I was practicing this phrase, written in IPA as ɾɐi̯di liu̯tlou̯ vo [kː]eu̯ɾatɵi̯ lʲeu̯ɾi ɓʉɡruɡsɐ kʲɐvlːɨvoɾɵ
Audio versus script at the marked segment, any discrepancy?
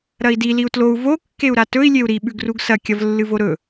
no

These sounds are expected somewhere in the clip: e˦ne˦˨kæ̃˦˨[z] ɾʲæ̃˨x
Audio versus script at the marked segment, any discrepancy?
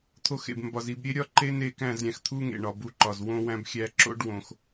no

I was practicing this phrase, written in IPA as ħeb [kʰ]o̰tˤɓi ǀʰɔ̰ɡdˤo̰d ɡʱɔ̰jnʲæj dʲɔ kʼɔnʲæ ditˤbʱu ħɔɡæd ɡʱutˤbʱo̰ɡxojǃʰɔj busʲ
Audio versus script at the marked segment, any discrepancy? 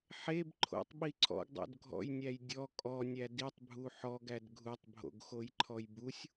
yes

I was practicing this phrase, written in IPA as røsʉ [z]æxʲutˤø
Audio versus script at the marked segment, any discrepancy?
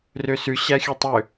yes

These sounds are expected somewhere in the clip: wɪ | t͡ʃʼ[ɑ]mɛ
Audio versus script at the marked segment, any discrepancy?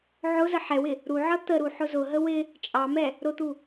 no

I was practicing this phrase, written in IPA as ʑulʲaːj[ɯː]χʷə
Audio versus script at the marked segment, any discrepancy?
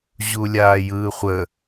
no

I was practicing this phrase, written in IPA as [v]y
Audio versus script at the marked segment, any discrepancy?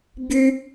yes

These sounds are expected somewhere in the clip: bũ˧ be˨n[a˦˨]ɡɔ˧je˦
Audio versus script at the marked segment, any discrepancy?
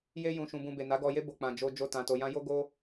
yes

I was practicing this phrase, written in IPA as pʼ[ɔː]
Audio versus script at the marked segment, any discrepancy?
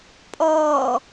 no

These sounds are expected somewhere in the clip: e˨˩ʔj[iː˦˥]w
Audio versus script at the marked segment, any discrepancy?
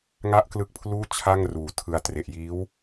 no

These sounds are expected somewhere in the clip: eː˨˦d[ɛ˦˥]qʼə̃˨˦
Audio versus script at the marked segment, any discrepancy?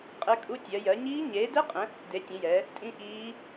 no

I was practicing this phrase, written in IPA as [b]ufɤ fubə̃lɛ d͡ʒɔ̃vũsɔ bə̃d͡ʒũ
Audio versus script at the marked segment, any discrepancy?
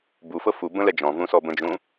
no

